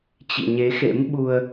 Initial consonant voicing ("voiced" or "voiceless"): voiceless